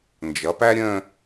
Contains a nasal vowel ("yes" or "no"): yes